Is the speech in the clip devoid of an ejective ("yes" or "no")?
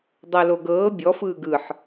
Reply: yes